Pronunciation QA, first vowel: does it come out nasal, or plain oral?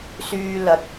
oral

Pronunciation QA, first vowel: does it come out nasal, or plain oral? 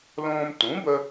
nasal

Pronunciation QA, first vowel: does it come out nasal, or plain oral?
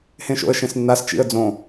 nasal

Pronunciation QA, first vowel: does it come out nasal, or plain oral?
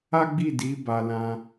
oral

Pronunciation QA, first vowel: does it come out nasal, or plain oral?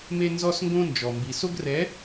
oral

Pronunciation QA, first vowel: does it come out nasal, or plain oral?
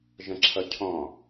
nasal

